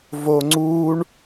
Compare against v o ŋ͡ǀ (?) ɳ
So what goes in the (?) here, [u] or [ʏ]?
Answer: u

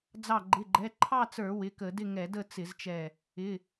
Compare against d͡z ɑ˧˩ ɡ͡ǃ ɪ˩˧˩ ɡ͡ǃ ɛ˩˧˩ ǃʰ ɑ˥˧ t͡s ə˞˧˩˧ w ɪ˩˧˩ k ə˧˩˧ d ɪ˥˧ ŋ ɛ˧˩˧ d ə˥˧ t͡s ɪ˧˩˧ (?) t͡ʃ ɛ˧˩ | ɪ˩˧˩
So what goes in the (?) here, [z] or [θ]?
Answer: z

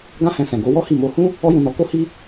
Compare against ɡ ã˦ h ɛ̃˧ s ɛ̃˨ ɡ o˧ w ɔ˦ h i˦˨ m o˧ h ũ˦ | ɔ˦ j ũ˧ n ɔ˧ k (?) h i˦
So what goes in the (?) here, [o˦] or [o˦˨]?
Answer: o˦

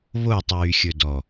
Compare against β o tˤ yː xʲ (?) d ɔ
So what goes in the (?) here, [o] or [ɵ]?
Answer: ɵ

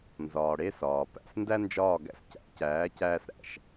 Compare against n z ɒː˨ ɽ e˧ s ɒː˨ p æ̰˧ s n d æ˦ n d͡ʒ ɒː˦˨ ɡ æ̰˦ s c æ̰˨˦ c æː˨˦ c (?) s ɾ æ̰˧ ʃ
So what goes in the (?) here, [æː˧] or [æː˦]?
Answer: æː˦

